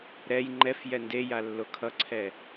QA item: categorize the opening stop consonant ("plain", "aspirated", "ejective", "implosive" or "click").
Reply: click